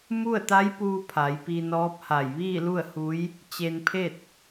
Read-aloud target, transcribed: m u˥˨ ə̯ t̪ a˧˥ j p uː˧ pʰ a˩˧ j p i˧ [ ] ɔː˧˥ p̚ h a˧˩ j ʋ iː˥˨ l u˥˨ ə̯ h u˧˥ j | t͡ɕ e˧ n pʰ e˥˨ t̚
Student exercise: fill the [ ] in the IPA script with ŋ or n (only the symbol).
n